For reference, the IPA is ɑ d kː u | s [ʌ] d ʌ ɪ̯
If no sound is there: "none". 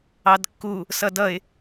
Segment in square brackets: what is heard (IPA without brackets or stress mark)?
ʌ